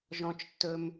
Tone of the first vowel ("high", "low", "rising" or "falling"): low